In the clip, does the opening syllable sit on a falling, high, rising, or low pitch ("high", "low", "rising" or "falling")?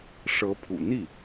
rising